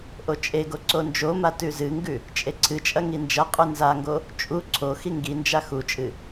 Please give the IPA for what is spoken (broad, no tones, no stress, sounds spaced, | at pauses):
ʔ o t͡ʃʼ e ɡ o ǀ o n d͡ʒ o m a t ʉ z ɨ ŋ ɡ ʉ | t͡ʃʼ e ǀʰ ɨ t͡ʃʼ ɐ ŋ i n d͡ʒ ɐ qʼ ʉ n z a ŋ ɡ o | t͡ʃʼ u ǀʰ o x i ŋ ɡ i n d͡ʒ a x u t͡ʃʼ ɨ